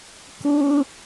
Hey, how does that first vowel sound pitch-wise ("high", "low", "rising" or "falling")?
high